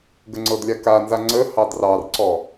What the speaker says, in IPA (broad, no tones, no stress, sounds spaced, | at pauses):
ɡ ə ŋ͡ǀ ɤ d lʲ a k a n z a ŋ͡ǀ ə h ɑ d r ɑ r ǀ ɔ